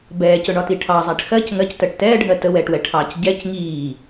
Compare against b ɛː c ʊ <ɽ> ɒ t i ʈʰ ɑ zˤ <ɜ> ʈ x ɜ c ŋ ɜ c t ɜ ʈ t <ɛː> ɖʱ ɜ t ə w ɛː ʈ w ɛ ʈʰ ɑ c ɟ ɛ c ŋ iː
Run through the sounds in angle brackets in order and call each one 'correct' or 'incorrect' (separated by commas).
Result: incorrect, incorrect, correct